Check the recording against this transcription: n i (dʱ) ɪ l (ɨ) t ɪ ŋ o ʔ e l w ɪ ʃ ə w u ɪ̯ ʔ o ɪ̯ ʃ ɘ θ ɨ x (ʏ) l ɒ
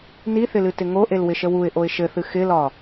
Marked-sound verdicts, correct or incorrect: incorrect, correct, incorrect

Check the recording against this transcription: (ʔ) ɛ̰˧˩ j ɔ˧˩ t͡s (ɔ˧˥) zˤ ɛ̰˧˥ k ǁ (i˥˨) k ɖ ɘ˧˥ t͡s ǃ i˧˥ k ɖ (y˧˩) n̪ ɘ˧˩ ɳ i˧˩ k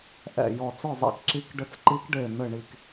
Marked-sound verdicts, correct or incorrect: correct, incorrect, incorrect, incorrect

